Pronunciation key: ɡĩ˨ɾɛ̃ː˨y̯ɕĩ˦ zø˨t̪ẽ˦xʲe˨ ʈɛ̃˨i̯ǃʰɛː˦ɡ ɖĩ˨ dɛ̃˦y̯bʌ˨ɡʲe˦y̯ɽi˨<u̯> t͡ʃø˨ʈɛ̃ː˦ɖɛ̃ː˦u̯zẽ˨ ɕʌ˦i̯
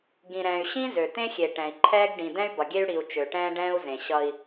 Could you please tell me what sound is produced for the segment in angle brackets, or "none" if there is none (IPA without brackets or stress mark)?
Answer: u̯